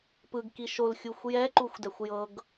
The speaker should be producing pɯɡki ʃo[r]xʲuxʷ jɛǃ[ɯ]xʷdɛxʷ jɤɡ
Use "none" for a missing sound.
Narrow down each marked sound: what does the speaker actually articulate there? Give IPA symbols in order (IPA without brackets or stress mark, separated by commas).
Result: l, u